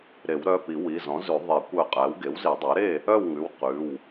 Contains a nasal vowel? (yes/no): yes